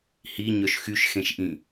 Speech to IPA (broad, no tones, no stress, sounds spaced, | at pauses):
h i ɲ œ ʃ x y ʃ x ẽ ʃ ʔ ĩ